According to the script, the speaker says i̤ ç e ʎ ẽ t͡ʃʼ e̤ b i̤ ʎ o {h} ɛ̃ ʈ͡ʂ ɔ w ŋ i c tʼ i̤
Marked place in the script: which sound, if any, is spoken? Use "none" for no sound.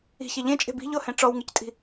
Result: h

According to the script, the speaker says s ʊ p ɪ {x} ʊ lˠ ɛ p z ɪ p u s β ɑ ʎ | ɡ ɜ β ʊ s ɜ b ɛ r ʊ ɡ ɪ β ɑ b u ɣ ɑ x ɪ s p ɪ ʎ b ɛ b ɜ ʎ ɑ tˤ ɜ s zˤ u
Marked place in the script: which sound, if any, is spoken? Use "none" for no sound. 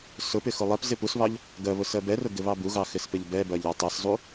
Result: x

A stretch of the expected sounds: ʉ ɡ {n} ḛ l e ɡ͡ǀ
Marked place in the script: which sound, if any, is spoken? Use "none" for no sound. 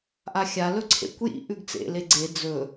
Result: t͡s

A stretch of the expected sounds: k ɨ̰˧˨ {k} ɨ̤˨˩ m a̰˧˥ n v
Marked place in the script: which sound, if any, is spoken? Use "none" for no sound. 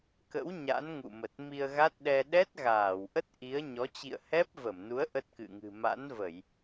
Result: ŋ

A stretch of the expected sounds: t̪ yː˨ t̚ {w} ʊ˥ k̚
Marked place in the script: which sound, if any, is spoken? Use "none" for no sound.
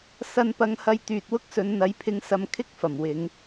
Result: w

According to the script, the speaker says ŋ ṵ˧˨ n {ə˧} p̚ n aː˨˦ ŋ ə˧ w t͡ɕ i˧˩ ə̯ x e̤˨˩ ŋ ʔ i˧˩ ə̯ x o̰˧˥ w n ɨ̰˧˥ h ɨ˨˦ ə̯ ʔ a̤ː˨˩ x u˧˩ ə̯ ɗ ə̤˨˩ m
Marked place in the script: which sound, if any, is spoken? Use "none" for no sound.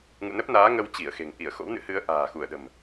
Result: ə˦˥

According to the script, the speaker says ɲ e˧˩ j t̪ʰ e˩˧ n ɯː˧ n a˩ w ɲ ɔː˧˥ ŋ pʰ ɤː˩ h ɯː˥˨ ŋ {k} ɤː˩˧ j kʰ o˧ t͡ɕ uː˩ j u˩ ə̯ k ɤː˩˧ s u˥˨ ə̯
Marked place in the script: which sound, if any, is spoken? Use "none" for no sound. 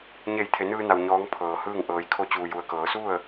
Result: ʔ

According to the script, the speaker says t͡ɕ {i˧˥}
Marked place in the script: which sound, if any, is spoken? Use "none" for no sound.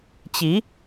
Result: i˧˥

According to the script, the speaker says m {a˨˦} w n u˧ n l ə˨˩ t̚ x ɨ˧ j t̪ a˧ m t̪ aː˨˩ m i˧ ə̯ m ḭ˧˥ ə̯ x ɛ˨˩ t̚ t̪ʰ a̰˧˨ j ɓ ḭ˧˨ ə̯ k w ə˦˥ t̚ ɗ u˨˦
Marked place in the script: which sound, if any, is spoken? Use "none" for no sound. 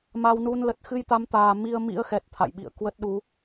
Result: a˧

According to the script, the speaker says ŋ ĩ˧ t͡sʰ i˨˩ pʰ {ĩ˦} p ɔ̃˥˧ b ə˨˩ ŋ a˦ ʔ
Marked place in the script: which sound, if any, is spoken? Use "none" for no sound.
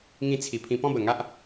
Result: ĩ˧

